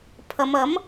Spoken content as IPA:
pʰ ɐ˨˧ m ɐ˨˥ m

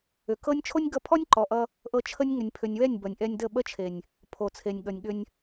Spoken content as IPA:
ʏ˨ k ɤ˦ nʲ t͡ʃʰ o˦ nʲ ɡ ʌ˧ pʰ ɔ˦ nʲ ǃ ɔ˨ ʔ ʌ˧ | ʔ ɤ˧ t͡ʃʰ ə˦ nʲ ŋ ʏ˨ nʲ pʰ ʏ˨ nʲ w ɛ˦˨ nʲ b ʌ˨ nʲ ʔ ɛ˧ nʲ d ə˦˨ ɓ ə˦ t͡ʃʰ e˨ nʲ | pʰ o˨ t͡sʰ e˨ nʲ ɠ ʌ˨ nʲ ɠ ʏ˧ nʲ

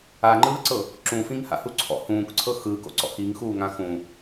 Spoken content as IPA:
a ŋ͡ǃ ɯː ǀ ɤ | ǁ ũ f ĩ ŋ h a̰ h u ǀʰ ɔ̰ h ũː k ǀʰ ɤ x ɯː k o̰ ǀ ɔ̰ x i ŋ x uː ŋ ã x ũː

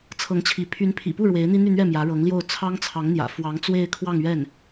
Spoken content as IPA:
t͡sʰ ɤ˧˥ ŋ t͡ɕʰ i˧˥ pʰ y˧˥ n pʰ ḭ˨˩ p u˥˩ ɻ w e˧˥ ɪ̯ n̪ i˥ n̪ y˥˧ n̪ ɥ ɛ˥˩ m j ä˧˥ ɻ ɤ˧˥ ŋ l j o˥˩ ʊ̯ t͡sʰ ɑ˥ ŋ t͡sʰ ɑ˧˥ ŋ n̪ j ä̰˨˩ f w ɑ˧˥ ŋ t͡s w e˥˧ ɪ̯ kʰ w ɑ˥˧ ŋ ɥ ɛ˥˩ n

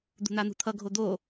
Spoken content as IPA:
d̪ ṳ n̪ a n̪ ṳ t̪ʰ ʌ ɡʱ o d̪ o

